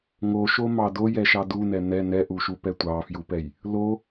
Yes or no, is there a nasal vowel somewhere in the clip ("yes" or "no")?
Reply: no